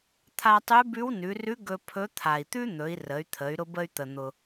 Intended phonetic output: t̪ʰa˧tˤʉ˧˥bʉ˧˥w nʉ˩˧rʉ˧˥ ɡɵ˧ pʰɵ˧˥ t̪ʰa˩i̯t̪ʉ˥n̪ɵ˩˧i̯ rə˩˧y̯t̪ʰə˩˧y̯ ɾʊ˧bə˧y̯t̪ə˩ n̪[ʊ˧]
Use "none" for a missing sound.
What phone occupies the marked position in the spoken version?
ʊ˩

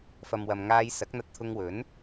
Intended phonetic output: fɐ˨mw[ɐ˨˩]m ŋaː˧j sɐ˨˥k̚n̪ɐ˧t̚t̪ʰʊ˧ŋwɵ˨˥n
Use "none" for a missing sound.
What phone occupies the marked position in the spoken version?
ɐ˨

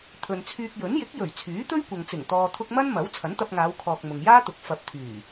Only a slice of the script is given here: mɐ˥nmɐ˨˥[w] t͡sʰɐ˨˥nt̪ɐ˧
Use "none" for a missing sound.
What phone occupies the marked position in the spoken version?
w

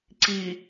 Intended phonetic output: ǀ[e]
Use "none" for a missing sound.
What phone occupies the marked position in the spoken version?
i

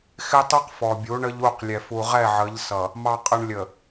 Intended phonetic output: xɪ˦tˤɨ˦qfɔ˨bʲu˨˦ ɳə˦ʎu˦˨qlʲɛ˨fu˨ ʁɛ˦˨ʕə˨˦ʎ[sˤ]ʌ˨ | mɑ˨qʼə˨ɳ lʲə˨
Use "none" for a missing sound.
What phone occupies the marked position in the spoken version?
s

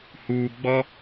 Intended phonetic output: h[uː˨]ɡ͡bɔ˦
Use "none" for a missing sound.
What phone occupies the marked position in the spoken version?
uː˨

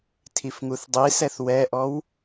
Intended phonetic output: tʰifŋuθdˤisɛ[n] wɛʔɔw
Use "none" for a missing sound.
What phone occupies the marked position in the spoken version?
θ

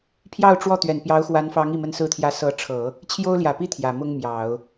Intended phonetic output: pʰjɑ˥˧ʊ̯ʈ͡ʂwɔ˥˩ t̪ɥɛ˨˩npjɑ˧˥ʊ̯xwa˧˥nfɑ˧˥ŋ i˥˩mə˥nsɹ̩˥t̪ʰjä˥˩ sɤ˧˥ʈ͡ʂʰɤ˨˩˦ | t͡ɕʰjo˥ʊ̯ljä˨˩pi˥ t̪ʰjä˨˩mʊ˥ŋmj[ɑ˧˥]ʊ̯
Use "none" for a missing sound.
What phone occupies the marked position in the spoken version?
ɑ˨˩˦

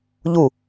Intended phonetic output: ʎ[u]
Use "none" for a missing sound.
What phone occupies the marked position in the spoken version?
u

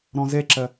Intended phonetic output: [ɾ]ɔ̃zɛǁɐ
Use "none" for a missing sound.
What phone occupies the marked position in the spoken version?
ɾ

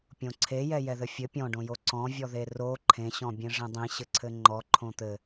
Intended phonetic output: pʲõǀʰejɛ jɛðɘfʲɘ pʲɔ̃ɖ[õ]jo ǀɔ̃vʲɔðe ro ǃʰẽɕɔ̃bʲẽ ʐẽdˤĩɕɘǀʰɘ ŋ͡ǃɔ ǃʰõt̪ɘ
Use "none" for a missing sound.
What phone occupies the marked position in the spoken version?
õ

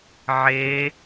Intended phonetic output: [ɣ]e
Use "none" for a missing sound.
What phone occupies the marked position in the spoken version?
ʕ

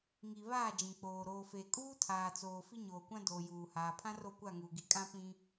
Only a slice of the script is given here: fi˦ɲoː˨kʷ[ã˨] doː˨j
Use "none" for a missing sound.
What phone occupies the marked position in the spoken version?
ã˦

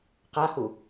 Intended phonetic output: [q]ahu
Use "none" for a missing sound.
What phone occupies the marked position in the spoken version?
q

